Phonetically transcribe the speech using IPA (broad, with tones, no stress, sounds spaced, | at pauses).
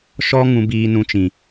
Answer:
ʃ ɔ˦ ŋ ũ˧ b iː˧ n ũ˧ t͡ʃ ĩ˨